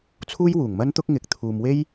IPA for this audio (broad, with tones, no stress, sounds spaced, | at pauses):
t͡sʰ uː˥ j w uː˨˩ ŋ m ɐ˥ n t̪ ʊ˥ k̚ ŋ ɪ˧ k̚ t̪ʰ uː˨ m w e˥ j